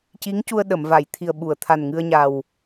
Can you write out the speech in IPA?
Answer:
ci˧˥ŋcu˧ə̯ ɗə˨˩˨mva˨˩˨j t̪ʰi˨˩ə̯ɓu˨˩˨ə̯t̪ʰa˨˩nŋɨ˧ə̯ ɲa˨˩w

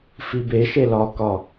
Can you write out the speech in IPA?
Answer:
fibeʃe lɒkɒ

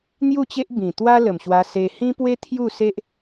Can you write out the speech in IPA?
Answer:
n̪ju˥˧t͡ɕe˦ʔ bĩ˨˩t̪wa˦lə˨˩mɕwa˧ se˧ hĩ˦pwe˦ t̪ʰju˥˧se˦ʔ

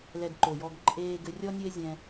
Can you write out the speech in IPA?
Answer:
lɛ˧ɡǃo˨jɔ˧ɡ ǃʼeː˧ ɡɘ˧rʲɔ˦ nʲɘ˦e̯zʲɛ̃˧

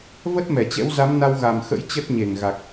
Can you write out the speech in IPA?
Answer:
və˦˥t̚mɛ˧˩t͡ɕɛ̰˧˥wza˨˦m na˧wɣa˨˩mxə̰˧˥j t͡ɕə˦˥t̚ɲe˧˩ŋ ɣa˨˩k̚

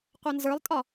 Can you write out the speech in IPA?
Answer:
qʷɐnzə˞lˠtʼɒ

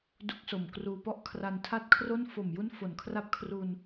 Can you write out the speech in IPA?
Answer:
du˦˥k̚so˨˩mkruː˧pɔ˥˩ʔ kʰra˧ntʰa˥˩t̚ kʰro˥˩n fo˨˩mju˦˥n fo˨˩nkʰra˥˩p̚ kʰru˧n

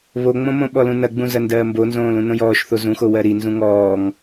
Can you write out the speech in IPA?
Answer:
βoŋ͡mõmõ ɓɔlũnɐɡ͡bũ zɐndɜːmbonzõː lũnõjɔːʃθo zũxo wɜɾi nzũŋɔːŋ

